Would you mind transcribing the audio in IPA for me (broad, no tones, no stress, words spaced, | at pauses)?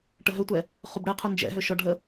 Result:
ʈəɦøtʷɛ | χubɽɛqʰu nd͡ʒɛ̰ ɦøʃɔɖʱə